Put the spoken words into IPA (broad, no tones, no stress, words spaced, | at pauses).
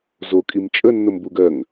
zo kʼimt͡ʃʼə nːombuɡ ɜŋ